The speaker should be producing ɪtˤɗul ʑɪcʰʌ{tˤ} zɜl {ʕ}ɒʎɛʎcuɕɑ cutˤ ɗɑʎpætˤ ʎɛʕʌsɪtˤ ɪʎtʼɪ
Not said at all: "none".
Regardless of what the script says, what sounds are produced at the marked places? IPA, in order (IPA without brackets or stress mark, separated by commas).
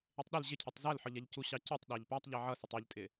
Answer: tˤ, ħ